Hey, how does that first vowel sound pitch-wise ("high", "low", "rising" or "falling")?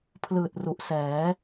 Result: low